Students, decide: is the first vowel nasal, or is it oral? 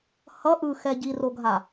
oral